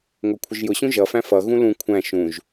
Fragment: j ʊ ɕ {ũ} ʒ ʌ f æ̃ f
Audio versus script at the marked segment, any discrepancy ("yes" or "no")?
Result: no